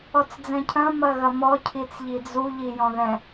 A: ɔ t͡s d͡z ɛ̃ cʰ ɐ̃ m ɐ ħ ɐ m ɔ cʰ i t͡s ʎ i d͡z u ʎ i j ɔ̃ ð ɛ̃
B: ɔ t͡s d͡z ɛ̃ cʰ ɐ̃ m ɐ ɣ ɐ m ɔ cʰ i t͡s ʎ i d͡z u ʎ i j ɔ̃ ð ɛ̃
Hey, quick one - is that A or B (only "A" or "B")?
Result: B